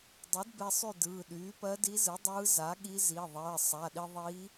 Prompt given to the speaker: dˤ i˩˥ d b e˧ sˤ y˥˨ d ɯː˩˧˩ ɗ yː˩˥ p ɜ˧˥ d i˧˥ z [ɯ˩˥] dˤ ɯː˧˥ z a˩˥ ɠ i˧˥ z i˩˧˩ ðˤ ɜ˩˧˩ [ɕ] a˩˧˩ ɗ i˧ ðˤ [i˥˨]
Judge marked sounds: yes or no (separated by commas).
yes, no, no